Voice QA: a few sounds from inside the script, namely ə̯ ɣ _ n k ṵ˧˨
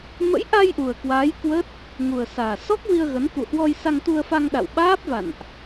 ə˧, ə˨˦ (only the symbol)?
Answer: ə˨˦